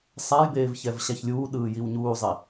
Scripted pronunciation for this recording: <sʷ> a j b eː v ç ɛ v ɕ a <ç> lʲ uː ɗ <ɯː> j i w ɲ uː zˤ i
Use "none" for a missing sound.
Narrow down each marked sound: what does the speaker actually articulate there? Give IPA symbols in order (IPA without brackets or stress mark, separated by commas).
sˤ, ç, ɯː